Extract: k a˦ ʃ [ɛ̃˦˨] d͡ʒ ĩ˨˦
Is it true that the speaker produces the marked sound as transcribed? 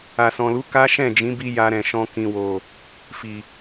yes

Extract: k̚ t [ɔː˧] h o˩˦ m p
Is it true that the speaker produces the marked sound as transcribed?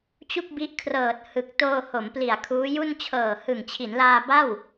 no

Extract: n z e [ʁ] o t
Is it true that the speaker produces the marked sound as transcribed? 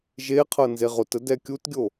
yes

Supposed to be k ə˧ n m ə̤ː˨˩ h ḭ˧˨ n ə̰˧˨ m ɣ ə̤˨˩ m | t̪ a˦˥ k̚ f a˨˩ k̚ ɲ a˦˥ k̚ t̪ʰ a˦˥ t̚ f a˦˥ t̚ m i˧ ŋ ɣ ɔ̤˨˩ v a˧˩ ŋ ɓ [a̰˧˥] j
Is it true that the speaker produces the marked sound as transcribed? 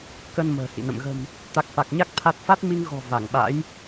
yes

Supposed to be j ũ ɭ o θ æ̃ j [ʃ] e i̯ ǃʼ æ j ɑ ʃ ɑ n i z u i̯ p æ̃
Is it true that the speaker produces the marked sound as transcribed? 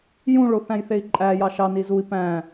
no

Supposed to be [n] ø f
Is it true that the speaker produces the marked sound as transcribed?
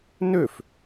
yes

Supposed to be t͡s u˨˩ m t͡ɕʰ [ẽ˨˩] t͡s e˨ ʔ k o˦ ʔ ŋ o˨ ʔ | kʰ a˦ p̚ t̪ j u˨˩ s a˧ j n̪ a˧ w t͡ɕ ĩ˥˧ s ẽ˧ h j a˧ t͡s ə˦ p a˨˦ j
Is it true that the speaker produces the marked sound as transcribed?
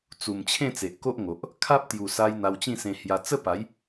no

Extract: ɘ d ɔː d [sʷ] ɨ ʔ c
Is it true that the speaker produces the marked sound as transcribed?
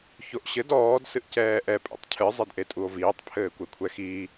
no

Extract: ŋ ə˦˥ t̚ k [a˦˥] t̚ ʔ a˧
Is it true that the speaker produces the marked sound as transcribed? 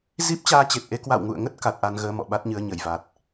no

